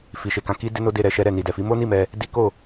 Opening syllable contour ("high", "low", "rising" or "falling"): low